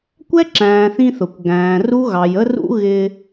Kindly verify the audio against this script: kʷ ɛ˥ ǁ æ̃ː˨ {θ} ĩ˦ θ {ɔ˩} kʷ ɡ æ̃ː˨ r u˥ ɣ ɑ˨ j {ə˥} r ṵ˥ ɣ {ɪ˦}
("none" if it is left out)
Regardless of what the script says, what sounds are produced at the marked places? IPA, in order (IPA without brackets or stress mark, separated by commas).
θ, ʊ˩, ə˥, ɪ˦